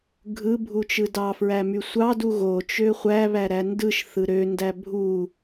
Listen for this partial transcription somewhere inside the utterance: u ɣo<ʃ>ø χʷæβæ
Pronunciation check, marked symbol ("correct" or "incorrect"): incorrect